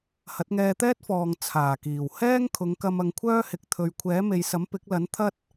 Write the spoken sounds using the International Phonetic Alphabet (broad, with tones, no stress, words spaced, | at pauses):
hɐ˨˥t̚ŋɛː˧t̪ɛː˥t̚fɔː˨ŋ t͡sʰaː˨˩kiː˨˩w hɛː˥ŋkʰʊ˨˧ŋkɐ˧m ɐ˧ŋkʷʰœː˥hɪ˨˥k̚ t̪ʰɵ˨ɥkʷʰɛː˨˥me˨jsɐ˨˥m pɪ˨˥k̚lɐ˨˥n t̪ʰɐ˥t̚